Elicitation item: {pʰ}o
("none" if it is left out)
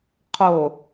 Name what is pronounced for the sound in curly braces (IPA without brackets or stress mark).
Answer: qʰ